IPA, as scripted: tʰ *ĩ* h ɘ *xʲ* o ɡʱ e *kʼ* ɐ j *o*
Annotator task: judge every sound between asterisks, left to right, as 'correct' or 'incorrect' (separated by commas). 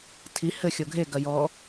incorrect, correct, incorrect, incorrect